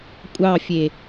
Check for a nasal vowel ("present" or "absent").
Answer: absent